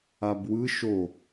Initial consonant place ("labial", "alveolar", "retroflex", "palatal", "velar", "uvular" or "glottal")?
labial